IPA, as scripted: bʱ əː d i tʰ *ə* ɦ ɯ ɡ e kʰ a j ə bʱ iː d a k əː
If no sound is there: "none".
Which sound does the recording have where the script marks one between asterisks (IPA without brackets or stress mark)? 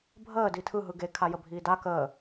ɯ